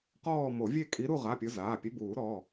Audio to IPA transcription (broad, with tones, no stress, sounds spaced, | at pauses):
q ɔː˦˨ m o˨˩˦ vʲ e˦˨ kʼ i˨˦ ɾ u˦˨ ʁ a˩˧˩ pʲ ʊ˨˦ z aː˩˧˩ pʲ e˨˦ b uː˨˩˦ ɾ ɔː˩˧˩